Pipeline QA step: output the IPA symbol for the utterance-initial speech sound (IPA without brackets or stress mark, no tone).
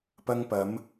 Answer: p